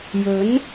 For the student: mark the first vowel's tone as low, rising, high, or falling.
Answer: rising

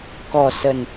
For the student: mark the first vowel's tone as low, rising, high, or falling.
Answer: low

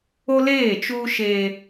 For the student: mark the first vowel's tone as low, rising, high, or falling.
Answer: high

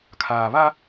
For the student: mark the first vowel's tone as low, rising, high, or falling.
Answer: low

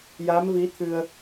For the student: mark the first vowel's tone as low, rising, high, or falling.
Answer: rising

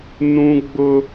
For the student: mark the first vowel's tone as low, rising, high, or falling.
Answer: high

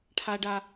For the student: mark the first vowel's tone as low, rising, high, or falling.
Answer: high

